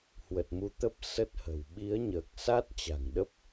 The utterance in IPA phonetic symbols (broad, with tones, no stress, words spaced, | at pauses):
hwə˨˩t̚mu˨˦t̪ə˦˥p̚ sə˦˥t̚hə̤˨˩w ɓi˨˦ə̯ɲəː˨˩k̚sa˦˥t̚ t͡ɕa̤˨˩ŋɗə˦˥p̚